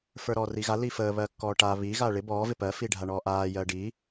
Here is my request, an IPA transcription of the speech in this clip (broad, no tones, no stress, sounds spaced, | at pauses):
f ə˞ ɾ ɔː r i ɣ a l i f əː β ɜ kː ɔː ʈ a β i ɣ aː ɭ ɪ b ɔː v ɪ p ɜ f i ɖʱ a ɳ ɔː ʔ aː j ɜː ɖ i